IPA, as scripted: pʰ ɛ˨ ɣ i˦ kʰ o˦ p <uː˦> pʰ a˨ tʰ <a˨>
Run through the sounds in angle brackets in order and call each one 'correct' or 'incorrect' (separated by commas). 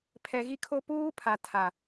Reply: correct, correct